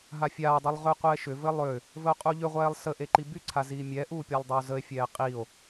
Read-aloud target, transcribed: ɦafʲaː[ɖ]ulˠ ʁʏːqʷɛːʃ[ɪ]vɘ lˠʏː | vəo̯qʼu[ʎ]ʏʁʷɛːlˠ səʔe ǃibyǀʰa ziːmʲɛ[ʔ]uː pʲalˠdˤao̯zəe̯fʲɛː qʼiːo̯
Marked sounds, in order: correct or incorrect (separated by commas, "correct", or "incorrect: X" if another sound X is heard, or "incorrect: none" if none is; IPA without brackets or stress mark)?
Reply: incorrect: dˤ, incorrect: ʏ, correct, correct